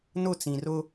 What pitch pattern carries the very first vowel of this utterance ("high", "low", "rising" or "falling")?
falling